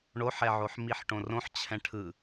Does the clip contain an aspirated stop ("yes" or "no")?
yes